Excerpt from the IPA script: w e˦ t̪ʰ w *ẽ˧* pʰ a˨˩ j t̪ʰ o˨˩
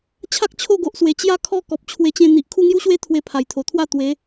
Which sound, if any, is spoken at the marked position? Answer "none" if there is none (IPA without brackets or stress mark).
e˧